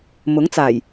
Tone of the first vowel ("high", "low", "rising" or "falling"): rising